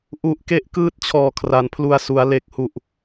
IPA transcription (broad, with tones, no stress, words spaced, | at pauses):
ʔu˨˩ʔke˦˥ʔ kɯː˦˥t̚t͡ɕʰɔː˨˩kʰra˩˦n pʰlu˨˩a̯su˩˦a̯ le˨˩k̚hu˨˩ʔ